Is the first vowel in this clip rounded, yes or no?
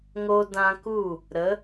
yes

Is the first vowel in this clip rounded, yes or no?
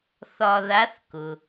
yes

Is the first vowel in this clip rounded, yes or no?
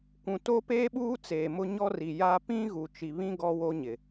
yes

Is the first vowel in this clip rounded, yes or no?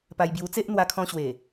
no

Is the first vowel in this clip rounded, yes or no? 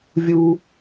yes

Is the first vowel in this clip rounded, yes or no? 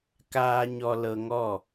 no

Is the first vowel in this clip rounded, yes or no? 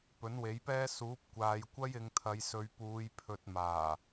yes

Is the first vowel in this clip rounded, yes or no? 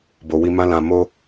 yes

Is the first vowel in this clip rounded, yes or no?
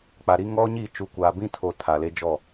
no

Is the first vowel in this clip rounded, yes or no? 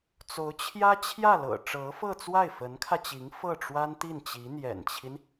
yes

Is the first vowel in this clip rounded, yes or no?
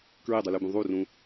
no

